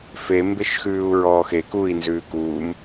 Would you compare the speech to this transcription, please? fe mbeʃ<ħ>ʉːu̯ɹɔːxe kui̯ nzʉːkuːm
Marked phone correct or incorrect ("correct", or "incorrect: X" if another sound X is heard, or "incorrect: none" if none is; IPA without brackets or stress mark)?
incorrect: x